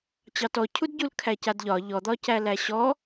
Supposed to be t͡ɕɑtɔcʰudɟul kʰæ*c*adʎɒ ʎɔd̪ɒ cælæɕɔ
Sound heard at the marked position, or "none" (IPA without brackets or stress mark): c